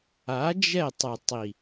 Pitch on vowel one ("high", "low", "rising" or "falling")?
rising